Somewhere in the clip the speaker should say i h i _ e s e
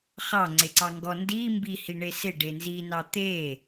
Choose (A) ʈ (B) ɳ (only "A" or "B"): B